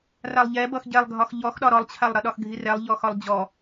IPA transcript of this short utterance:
r a lˠ ʎ ɛ b ʌ x ɟ ɛ lˠ ɡʱ ɒ x ʎ ɔ x ɗ ɒ ɾ ɔ lˠ t͡ɕʰ a lˠ ɾ ʌ ɗ ɒ x ɡʱ i r ɛ lˠ ʎ ɔ x ɒ lˠ d͡ʑ ɔ

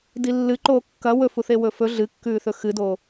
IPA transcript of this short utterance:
d i lː ɨ ǃ oː kː ɐ w ɵ f u θ e w ɵ f ɵ ɮ ɨ kː ʉː θ ɵ x ɨ d oː

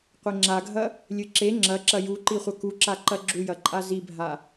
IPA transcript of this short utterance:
qʷ e ŋ͡ǁ a ɡʱ ɐ | lʲ ɨ ǁ e ŋ͡ǁ ɐ ǁ ɐ j u ǃ i χʷ ɐ k u ǁ a ǃ ɐ ɡ͡ǁ u j ɐ ǃʼ a z i bʱ a

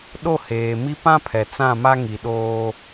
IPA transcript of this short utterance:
ɗ o˦˨ h eː˨ m i˦ p ã˦ pʰ ɛ˨ t͡s ã˦˨ m a˦ ŋ i˨ ɗ oː˦

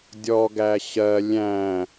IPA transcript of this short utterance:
dʲ ɔ ɡ æ ɕ ɜ lʲ æ̃

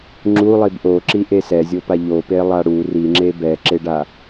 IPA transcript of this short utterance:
ŋ͡ǁ u lˠ i b ʔ o ǁ i ʔ e s ɛ zʲ o p a ʎ o p e lˠ a ɽ u r i ŋ͡ǁ e b ɛ ǁ e ɖ a

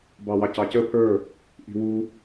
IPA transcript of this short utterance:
b ɑ w ɑ c ɑ c ə pʰ ə˞ | ʔ i̤ w u

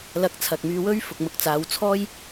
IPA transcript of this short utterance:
l ɐ˧ k̚ t͡sʰ ɐ˨ k̚ m yː˧ w ɵ˥ ɥ f ʊ˨ k̚ m ʊ˨ k̚ t͡s aː˨˧ w t͡sʰ ɔː˥ j

